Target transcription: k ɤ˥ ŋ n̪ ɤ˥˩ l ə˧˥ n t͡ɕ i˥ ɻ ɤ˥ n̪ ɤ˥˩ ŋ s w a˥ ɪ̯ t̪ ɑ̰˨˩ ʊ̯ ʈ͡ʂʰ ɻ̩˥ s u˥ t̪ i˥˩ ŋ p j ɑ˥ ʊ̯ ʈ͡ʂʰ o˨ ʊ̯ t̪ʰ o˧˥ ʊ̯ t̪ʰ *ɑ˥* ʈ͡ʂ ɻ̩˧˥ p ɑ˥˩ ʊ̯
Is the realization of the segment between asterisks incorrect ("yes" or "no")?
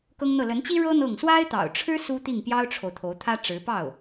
yes